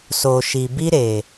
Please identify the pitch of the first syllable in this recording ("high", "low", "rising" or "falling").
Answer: low